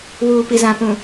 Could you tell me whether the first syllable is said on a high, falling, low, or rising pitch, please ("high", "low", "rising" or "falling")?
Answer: low